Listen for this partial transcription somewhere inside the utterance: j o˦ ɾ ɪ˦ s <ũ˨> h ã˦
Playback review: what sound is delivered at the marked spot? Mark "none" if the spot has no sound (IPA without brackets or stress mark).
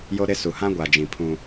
u˨